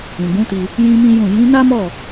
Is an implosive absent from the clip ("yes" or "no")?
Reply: yes